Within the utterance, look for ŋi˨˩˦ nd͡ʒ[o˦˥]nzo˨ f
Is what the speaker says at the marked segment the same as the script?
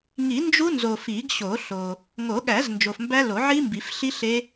no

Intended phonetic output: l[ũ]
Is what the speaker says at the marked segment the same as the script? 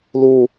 no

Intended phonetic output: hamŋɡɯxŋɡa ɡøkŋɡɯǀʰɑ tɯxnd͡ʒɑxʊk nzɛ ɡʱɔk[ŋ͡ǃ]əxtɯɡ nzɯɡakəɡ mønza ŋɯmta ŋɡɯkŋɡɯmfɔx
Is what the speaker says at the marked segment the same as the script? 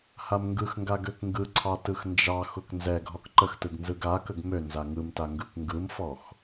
no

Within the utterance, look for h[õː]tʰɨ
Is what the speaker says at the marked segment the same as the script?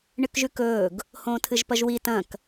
yes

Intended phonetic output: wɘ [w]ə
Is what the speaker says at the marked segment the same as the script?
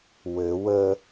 yes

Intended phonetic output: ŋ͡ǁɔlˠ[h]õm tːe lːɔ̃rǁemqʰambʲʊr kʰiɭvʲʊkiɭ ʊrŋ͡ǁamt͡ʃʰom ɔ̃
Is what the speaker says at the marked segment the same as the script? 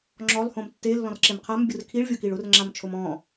yes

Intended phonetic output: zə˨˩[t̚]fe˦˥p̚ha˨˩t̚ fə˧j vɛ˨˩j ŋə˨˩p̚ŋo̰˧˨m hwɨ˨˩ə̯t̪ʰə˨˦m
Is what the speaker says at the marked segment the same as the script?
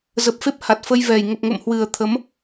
no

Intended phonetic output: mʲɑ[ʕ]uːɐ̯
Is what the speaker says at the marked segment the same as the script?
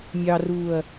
no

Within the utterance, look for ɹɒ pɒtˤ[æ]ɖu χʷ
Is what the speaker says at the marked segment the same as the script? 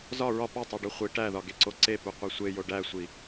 yes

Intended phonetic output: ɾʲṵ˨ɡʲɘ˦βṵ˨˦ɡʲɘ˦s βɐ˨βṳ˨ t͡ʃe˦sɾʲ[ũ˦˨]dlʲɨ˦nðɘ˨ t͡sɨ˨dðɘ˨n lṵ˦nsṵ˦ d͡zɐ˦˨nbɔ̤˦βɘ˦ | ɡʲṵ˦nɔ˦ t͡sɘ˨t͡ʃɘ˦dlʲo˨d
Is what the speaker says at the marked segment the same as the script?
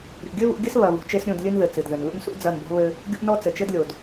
yes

